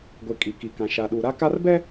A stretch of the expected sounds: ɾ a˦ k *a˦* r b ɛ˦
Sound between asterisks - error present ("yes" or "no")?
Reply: no